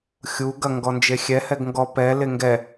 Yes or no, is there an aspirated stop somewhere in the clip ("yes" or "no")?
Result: no